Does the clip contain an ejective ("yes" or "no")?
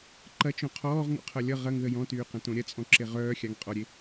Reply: yes